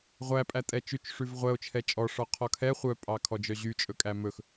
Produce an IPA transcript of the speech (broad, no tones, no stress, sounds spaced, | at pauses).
ʁʷ æ pʼ æ tʼ ɛ t͡ʃ ʉ t͡ʃ ʂ ʉ v ʁʷ ɛ o̯ t͡ʃʰ ɛ t͡ʃʼ ɔ ʂ ɔ qʰ ɔ kʰ ɛ χʷ œ pʼ ɑ kʰ ɔ d͡ʒ œ ʑ y t͡ʃʼ ɵ kʼ æ m ɵ x